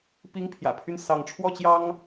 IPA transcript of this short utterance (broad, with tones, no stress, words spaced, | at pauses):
pi˦ŋpʰjä̰˨˩pʰy˥˨n sɑ˨˦ŋʈ͡ʂʰwɔ˥˨ t͡ɕjɑ˦ŋ